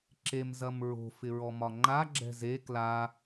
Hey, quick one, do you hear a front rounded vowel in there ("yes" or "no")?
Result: no